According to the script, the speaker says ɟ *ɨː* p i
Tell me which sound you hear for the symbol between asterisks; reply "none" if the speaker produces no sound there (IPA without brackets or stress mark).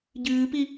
ɨː